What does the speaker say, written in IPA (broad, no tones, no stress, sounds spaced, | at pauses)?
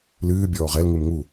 l ɨː bʲ ɔː ʁ ɛ l ŋ ɨ m ŋ u